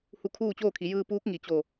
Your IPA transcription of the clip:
hu˧˩ kʰuː˥˨t͡ɕoː˥˨kʰi˩˧ jɯː˧puː˧˥k̚ ŋi˩t͡ɕo˧˩

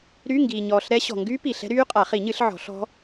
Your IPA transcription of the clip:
ɾy˧˥˧ŋɡiː˨ɲɔː˨ɬ ɾɛ˦˥ ɕɔ̤˨ŋɡy˦˥piː˨ɬ ɛ̤˦˥ɾyː˦˥qʼa˨˩˦ χi˨˩˦ɲɨ˨˩˦ɬʕɔ̤˨˩˦ɬ ɔ̤˦˥

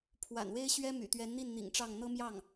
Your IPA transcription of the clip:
pʰwa̰˨˩nwe˥ɪ̯ɕɥɛ˥ my̰˨˩t̪ɥɛ˧˥nn̪i˥˩n n̪ḭ˨˩ŋʈ͡ʂɑ˥˩ŋ n̪ɤ˥mjɑ˥˩ŋ

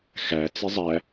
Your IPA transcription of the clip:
xæ t͡sizˤæ

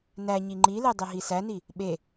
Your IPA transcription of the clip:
næɲi ŋ͡ǃile dˤeɦisæni | ɓe

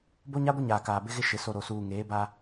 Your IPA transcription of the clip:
bo˦ɲa˦ɡʷɪ˦ ɲaː˨ kaː˨bɪ˦ɣɪ˦ ʃɪ˨ so˨ ɾo˨suː˨ ŋeː˨˦ba˦

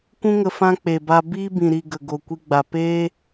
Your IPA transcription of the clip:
kʷũ˧ŋə˨ fã˦k͡pe˨ba˧ biː˦bĩ˨ ɾi˨ ɡə˨ɡo˨ kʷi˧ɡ͡ba˨ peː˦

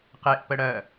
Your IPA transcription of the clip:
qeʔ pəɽɜ

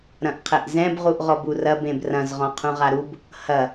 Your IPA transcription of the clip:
ɾɐ̃ʔqʰɛʔzɛ̃b ʁuʔʁɔburɐb ẽbrɐ̃z ʁɔ̃qʰũʁaɾub | hɐ

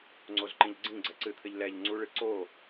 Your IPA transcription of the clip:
ŋ͡ǀozǃĩʎɡ͡ǀĩɡ͡ǀɛ ǀɨt̪ʰɘʎ lɛʎ ŋ͡ǀuɭɨ ǀo

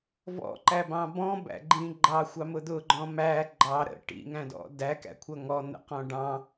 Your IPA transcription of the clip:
vɔ̰ǃæbɑ̃ bɔ̃bæ̰ɡ͡ǃĩ ɡ͡ǃɑxʷɑmʊ d̪ʊɡ͡ǃɔ̃ mæ ɡ͡ǃɑ ɾə̰ ʈḭŋæ̃dɔ̰ dækæ̰kʷʰʌ ŋɔn̪ə̰qɔ̃ ɖɑ̃

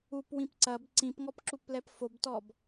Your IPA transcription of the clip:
upwĩp ǀɐb ǀĩpŋɔpǁuplɛp fobtɔb

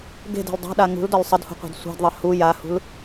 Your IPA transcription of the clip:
ɡe̤de̤l dˤa̤ɗa ŋṳldɒl sˤədhṳqʷe̤d sʷa̤dðˤə hu jahṳl

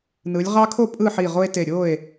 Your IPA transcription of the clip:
nɯ˩˧lʲʁɑ˦kʰo˥˨ pʼɯ˥˨ħi˧˩ ʁo˦e̯ te˧˩ɾʲo˥˨e̯

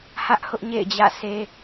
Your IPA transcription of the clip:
hä˦ʔhʊ˦ʔ ɲḛ˦˨ɪ̯d͡ʑä̰˦˨se˦

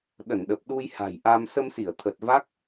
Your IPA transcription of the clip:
ɗə˧˩nɗə˨˩p̚ɗu˧j ha̤˨˩jʔa˧m sə˧msi˧˩ə̯t̪ʰə˨˩t̚ va˦˥k̚

